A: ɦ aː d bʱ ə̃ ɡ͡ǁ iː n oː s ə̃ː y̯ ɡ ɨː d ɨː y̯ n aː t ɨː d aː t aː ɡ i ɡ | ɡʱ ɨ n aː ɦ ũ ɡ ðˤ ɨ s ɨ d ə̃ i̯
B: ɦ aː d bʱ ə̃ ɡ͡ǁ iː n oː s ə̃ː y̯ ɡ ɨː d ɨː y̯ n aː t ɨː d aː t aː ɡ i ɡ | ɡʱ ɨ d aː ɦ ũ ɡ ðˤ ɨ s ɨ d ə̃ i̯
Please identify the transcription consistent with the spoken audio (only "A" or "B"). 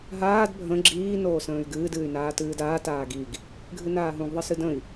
A